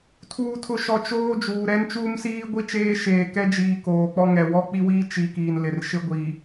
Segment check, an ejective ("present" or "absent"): absent